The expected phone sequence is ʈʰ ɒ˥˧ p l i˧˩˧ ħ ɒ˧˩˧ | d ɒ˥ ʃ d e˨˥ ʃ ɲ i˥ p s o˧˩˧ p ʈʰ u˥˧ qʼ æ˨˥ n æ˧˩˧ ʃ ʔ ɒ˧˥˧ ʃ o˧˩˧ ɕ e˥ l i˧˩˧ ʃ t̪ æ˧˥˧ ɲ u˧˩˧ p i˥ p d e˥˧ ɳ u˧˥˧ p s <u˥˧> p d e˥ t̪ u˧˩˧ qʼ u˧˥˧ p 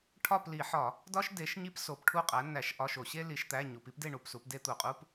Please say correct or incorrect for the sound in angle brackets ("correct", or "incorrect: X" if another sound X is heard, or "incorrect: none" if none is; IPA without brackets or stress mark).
incorrect: u˨˥